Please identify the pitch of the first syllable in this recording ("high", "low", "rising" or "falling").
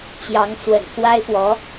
rising